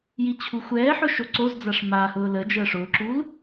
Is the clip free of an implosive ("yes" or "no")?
yes